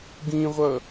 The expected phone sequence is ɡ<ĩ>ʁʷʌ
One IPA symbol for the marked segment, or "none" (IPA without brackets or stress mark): ĩ